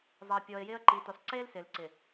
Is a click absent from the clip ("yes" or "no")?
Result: no